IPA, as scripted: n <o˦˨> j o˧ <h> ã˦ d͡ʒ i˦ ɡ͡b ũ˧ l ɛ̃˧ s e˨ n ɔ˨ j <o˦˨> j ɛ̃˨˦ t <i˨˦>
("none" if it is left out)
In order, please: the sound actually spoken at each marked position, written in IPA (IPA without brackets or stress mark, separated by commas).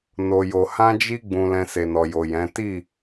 o˧, h, o˨, i˦˨